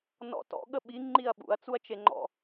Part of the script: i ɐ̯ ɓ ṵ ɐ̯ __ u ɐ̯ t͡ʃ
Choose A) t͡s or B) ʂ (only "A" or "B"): A